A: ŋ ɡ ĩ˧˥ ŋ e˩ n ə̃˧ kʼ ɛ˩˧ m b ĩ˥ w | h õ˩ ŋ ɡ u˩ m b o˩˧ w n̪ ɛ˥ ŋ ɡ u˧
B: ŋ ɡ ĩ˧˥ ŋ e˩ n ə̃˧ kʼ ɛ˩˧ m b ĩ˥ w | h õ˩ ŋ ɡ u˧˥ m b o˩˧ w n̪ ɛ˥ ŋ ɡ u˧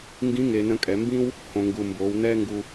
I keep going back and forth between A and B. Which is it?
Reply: A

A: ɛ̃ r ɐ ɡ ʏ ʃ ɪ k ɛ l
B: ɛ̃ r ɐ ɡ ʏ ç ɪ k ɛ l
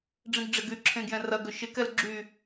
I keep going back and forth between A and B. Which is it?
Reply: A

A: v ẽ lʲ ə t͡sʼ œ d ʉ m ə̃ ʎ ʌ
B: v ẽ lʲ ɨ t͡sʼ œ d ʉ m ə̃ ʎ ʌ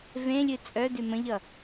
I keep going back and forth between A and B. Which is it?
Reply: B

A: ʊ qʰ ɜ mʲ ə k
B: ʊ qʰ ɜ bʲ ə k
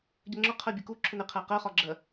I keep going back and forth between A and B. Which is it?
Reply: B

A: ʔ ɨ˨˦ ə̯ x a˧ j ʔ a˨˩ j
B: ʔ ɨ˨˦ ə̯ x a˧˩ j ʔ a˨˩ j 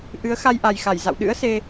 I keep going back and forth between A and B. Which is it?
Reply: A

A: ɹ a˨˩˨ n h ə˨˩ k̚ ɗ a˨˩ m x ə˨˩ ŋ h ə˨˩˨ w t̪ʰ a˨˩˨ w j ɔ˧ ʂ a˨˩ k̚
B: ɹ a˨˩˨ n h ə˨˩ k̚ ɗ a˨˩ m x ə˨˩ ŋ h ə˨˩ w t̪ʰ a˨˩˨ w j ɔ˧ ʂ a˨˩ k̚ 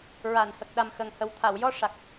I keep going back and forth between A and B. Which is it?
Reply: B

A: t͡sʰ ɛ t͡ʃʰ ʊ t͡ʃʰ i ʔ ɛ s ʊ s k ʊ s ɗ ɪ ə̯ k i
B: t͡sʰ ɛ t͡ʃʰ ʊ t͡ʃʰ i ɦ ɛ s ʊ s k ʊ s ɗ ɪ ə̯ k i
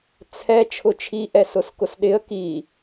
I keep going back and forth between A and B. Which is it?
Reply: A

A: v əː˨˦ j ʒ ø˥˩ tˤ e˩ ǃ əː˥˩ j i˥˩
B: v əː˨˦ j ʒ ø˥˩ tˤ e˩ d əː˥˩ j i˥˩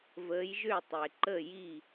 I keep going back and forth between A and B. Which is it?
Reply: A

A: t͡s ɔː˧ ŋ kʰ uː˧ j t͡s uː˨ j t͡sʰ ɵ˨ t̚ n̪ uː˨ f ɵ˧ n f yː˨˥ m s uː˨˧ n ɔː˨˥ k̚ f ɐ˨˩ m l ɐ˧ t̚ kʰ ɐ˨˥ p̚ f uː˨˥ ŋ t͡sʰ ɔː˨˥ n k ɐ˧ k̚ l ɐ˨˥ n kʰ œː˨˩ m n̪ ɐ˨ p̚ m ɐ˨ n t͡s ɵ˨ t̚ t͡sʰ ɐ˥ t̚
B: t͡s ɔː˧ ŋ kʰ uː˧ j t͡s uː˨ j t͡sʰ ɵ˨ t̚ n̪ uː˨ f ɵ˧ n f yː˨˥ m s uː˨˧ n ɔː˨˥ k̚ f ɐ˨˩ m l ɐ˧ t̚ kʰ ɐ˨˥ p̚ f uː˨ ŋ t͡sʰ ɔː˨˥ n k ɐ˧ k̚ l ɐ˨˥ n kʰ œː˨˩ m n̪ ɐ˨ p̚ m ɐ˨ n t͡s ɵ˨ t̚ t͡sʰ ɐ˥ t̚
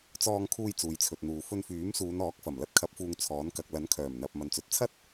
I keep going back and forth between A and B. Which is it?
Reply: B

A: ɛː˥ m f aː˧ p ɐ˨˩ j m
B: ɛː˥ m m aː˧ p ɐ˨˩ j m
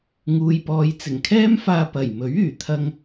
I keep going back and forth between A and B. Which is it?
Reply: A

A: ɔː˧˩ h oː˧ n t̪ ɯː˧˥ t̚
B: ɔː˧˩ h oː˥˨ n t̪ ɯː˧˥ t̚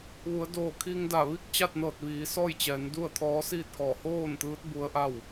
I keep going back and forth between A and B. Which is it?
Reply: B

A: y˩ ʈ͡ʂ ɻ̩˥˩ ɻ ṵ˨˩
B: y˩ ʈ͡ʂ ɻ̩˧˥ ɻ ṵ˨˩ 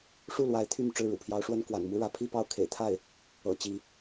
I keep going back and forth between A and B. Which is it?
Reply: A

